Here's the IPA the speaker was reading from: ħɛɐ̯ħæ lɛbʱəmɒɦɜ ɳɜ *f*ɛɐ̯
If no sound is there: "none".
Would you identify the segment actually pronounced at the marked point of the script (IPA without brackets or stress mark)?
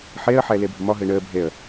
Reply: bʱ